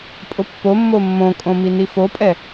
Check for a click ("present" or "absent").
absent